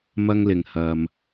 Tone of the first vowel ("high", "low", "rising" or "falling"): high